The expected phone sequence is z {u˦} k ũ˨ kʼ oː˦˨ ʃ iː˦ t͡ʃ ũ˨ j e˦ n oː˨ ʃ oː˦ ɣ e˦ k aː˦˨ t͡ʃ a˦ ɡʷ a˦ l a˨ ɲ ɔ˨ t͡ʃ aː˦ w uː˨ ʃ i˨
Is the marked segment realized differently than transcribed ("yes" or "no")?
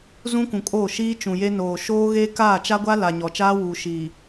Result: yes